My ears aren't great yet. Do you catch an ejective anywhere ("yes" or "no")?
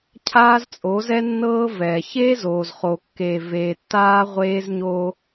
yes